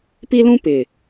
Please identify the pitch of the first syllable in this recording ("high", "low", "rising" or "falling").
high